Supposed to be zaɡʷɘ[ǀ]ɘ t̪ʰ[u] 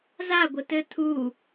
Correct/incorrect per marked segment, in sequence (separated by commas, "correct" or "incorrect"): incorrect, correct